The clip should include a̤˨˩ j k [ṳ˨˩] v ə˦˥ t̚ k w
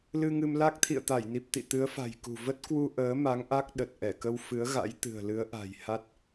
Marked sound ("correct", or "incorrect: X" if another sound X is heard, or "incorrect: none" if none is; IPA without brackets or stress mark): correct